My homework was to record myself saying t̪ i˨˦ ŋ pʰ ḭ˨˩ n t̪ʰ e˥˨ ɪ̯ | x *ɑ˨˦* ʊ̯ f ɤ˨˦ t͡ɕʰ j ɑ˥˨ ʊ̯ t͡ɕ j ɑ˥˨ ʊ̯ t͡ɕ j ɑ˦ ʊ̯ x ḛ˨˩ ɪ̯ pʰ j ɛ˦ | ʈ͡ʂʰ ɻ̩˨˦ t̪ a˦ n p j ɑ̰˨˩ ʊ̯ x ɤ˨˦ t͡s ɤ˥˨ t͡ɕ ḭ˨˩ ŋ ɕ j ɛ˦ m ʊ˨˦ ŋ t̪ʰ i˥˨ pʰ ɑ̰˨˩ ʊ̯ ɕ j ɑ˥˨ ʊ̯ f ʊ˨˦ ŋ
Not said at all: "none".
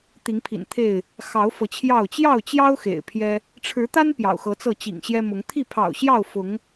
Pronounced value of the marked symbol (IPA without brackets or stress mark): ɑ˨˦